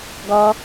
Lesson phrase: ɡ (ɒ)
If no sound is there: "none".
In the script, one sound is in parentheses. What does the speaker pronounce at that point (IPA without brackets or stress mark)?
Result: ɒ